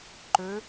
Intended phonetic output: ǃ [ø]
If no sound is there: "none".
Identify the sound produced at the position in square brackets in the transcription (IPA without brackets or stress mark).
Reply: ø